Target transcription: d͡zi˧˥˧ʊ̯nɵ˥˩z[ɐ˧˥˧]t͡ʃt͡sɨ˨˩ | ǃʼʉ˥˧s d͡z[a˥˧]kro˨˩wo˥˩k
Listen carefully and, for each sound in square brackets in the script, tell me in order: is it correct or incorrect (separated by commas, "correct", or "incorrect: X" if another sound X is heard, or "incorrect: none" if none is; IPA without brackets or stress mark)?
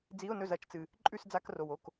correct, incorrect: a˧˥˧